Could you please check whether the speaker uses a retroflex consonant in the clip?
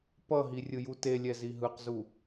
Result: no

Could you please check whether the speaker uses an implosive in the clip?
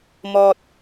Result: no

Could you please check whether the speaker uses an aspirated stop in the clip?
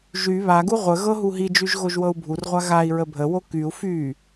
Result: no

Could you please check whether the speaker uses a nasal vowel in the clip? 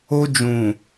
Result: yes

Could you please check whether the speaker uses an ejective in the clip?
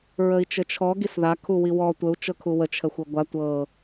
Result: no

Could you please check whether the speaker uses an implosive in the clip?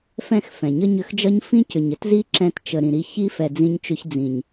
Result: no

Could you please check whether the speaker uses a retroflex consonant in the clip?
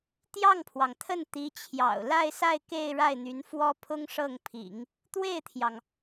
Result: yes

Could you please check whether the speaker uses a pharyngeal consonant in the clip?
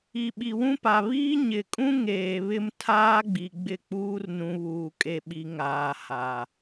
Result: no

